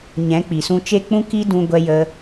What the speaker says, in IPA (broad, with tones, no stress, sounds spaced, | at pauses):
ɲ ɛ̃˨˦ k͡p i˨ s ũ˧ t͡ʃ e˦ k͡p ũ˦ k i˦ d ũ˧ ɡʷ ɛ˧ j ə˧